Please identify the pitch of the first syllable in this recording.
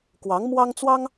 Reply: rising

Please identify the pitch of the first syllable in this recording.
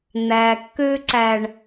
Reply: low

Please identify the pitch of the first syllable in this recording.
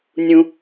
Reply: high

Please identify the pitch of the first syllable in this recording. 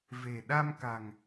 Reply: low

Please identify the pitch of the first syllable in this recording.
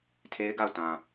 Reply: high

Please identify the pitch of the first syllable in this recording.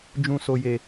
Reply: low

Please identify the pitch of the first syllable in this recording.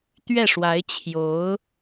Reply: falling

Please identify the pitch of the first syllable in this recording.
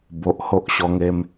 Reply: low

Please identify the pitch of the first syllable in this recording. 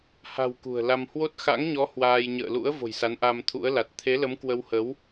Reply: low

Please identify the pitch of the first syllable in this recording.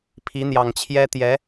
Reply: rising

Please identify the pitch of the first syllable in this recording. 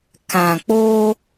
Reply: low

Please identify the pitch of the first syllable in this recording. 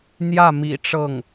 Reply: falling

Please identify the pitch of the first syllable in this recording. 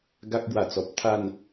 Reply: high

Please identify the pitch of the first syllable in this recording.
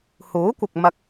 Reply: rising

